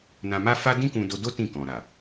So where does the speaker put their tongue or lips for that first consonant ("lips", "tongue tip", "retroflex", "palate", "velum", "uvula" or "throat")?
tongue tip